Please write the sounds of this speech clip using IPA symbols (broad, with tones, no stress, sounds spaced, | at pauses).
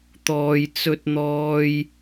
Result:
t̪ ɔː˥ j t͡s ɵ˥ t̚ n̪ ɔː˥ j